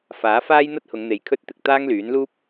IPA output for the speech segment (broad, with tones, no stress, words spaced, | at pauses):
faː˨˥ faː˥jn̪ɐ˥t̚hʊ˨˧ŋn̪e˨j kʰɵ˧t̚t̪ɪ˨k̚ t̪aː˥ŋlyː˨˥nluː˥p̚